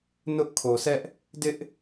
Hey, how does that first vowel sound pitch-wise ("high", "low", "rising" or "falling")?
high